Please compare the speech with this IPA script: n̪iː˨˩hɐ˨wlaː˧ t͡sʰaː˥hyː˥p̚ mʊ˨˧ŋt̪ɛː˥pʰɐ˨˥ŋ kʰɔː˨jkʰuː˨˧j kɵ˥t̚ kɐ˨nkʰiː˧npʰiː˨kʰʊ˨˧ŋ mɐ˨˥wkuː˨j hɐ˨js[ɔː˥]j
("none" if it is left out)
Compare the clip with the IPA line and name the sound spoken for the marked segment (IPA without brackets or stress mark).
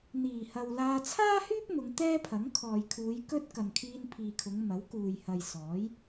ɔː˨˥